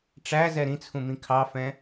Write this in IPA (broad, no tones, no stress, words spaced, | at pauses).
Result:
ʈ͡ʂæzɛ ɾĩt͡sʰũmĩ kʰɑfɛ̃